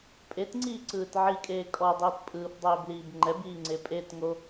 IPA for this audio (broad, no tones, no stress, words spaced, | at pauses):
pʼetŋ͡ǀiːǀɯːt ʕikʼeː kʼɔdˤiːt pʼɯːfdˤeːbliːb ŋ͡ǃɛbiːŋ͡ǀe pʼetŋo